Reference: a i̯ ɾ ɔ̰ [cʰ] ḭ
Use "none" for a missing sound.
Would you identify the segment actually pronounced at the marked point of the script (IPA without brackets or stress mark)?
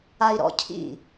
cʰ